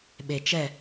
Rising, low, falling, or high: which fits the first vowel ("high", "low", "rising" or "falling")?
low